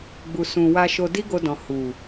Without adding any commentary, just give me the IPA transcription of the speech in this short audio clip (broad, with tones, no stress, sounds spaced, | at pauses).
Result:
ɡ͡b u˨ s ũ˨ w a˧ ʃ o˧ d i˦ ɡ o˧ d ɔ̃˨ h u˨